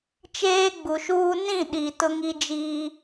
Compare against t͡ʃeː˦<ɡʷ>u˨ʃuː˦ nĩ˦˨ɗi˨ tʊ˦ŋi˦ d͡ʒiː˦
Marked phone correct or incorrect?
incorrect